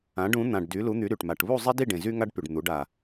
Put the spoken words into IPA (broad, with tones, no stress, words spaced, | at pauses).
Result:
ã˩˧ɖũ˩˧ n̪ã˩ɖ dy˩˧lu˩˧n̪y˩˧ ɾy˩ʈ ma˩ʈβu˦˨zˤe˦di˦˨ ɖẽ˩zy˦ ŋa˦ɖpy˩ɖ n̪u˩˧ɖa˩